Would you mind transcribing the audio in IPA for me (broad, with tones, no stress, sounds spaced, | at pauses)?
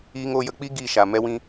iː˧ ŋ oː˧ j ə˧ k͡p i˦ ɡ iː˦˨ ʃ a˨ m ɛ˧ w ĩ˧